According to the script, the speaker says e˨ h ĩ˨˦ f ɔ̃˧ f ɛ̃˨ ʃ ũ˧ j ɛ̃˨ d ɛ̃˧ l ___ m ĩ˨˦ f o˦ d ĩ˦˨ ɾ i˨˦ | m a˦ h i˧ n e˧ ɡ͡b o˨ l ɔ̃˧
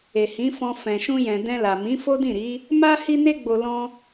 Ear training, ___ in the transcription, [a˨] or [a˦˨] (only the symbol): a˨